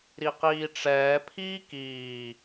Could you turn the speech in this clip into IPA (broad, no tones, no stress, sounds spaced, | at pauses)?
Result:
ɾ i q iː ʈ͡ʂ ɛː pʰ iː k iː